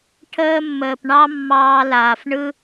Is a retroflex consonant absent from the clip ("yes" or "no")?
no